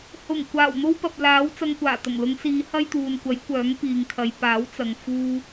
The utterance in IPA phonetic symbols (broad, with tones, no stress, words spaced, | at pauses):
hʊ˨˩ŋ kʷaː˨˩wn̪o˥wpɐ˨p̚laː˨˥w t͡sɐ˧ŋkʷaː˨˩ t̪ɐ˨˩ŋlʊ˨˧ŋsiː˨˧ hɐ˥jt̪uː˨nkʷɐ˨˥j kʷœː˨˥ŋpiː˨ŋkʰɐ˨˧j paː˨˥wt͡sɐ˨ŋ fuː˥